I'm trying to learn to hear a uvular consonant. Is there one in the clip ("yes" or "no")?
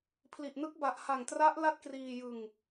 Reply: no